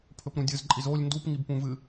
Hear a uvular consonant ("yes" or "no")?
no